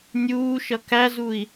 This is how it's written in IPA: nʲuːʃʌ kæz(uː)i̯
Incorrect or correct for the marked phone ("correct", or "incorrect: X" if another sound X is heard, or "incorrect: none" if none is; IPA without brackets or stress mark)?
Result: incorrect: u